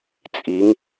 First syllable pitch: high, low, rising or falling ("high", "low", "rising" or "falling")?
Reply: rising